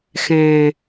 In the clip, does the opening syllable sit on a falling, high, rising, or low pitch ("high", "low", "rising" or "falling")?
low